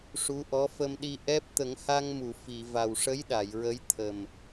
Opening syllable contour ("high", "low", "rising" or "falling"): rising